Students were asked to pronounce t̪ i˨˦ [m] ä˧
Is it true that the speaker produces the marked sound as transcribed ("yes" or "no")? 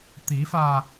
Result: no